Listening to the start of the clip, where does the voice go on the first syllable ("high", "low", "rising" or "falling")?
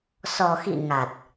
low